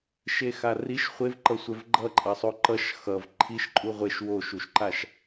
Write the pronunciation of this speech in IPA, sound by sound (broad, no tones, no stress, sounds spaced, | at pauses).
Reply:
ʃ e x a r i ʃ χʷ e v ǃ ʌ sʷ ɛ v ɡ͡ǃ ʌ ǃʼ ʌ sˤ o ǃ ʌ ʃ x ʌ v ǃʰ i ʃ ǃʼ u ʁʷ e ʃ w o ʃ u ʃ ǃ a ʃ